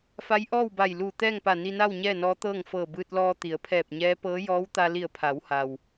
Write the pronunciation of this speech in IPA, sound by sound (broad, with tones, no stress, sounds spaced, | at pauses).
f a˧˥ j ʔ ɔː˥˨ w b a˧˩ j l uː˧˩ t̪ ɛː˥˨ ŋ p a˧˩ n i˧ n a˥˨ w ɲ ɛː˥˨ n ɔː˧˥ t̪ ɤː˥˨ ŋ f ɤː˧˩ b ɯː˧ t̚ l ɔː˧ t̪ i˩˧ ə̯ pʰ ɛː˧˩ p̚ ɲ ɛː˧˥ p ɤː˧˥ j ɔː˧˥ w t̪ a˧ l i˧˩ ə̯ pʰ a˩˧ w h a˩ w